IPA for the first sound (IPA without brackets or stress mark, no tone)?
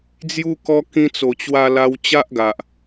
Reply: d͡z